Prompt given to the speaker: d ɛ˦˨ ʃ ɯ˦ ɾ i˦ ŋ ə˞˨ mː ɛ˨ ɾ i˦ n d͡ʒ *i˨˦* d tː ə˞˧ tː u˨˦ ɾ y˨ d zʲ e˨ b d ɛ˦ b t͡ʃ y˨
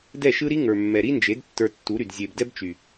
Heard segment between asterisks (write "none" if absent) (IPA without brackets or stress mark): e˨˦